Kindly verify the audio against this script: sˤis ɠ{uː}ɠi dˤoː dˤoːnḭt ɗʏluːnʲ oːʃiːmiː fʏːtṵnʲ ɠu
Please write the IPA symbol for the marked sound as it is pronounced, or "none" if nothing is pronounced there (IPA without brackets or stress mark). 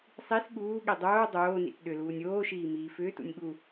uː